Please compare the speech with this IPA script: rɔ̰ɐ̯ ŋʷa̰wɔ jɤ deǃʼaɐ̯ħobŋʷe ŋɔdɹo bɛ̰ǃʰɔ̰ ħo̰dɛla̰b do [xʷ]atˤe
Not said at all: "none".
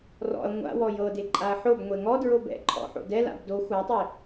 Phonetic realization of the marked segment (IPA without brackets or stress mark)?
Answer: xʷ